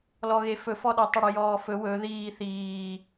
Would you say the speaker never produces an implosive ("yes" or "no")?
no